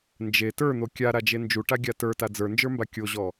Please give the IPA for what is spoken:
n d͡ʒ e t ə˞ n̪ o kʲ a ɾ a d͡ʒ e n d͡ʒ u ʈ a ɡʲ a t ə˞ t a d͡z ə˞ n d͡ʒ ə˞ m b a kʲ o ʑ ɔ

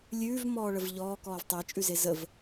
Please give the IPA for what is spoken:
lʲ ʉː v m ɔː ɭ ə v ʎ ɔː k ɔː v tˤ e t͡ʃʼ ʉ z e z ə v

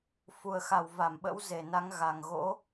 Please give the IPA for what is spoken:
f u˨˩ ə̯ x a˧˩ w v a˧˩ m ɓ ə̰˧˥ w z e˨˩ n a˨˦ ŋ ɣ a˨˩ ŋ ɣ o̰˧˥

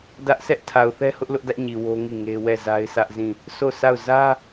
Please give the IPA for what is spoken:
d ä˦ ʔ s ɛ˦ ʔ tʰ a˨ ʊ̯ θ ɛ˦ h ʊ˦ ʔ l ʊ˦ ʔ d ä˦ ʔ ɲ i˨ w o˦ ŋ i˦˨ ŋ e˦ w ɛ˦˨ z a˦ ɪ̯ sʰ ä˦ ʔ z ĩ˦˨ | s o˦˨ sʰ a˦˨ ʊ̯ z ä˦

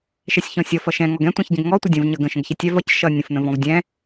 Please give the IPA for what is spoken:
ʃ ɛ sʲ ç ɔ̃ sʲ ʌ f ʌ ʃ ɛ̃ ŋ ɔ ɡ ɛ̃ tʷ ɛ̃ ç ɟ ə̃ ɡ ŋ ɔ tʷ ə dʲ ə̃ v ɲ ʌ ɡ ə̃ ʃ ə̃ ɡ ç ɛ tʲ ɛ v ʌ c ʃ ʌ nʲ ə̃ f n ə̃ v ɔ̃ v dʲ ɛ̃

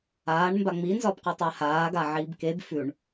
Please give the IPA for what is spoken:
aː ɳ m b a ŋ͡m i n z ɒ b q ɵ tˤ a h aː ɡ a ʕ iː b k e b f ʉ ɳ

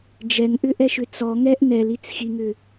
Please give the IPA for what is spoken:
d͡ʒ ɛ ŋ ʔ ʏ ʔ ɛ ʃ ʏ t͡s ɔ ŋ ɛ ʔ n ɛ l i t͡s x i ŋ ʏ

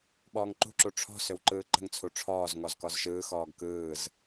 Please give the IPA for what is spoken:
ɓ ɔː ŋ ǃ ṳ ǁ u ʈ͡ʂʰ ɔ̤ s ʏ w ǃ ɯː ǃ ə̤ ŋ t͡sʰ u ʈ͡ʂʰ ɔː z ŋ ɔ z k ɔ z ʃ ɯː x ɔː ɡ k ɯː z

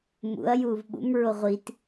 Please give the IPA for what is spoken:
m ṵ ɐ̯ j uː v ɓ ṵ m ɹ o ʁʷ i t

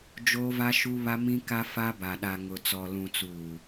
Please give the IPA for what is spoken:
d͡ʒ oː˦ v a˦ ʃ u˦ β a˦ m ĩ˦ k a˦ f a˦ b a˨ ɗ a˨ ŋ ʊ˨ t͡s ɔ˨ l ũ˨ t͡s uː˨

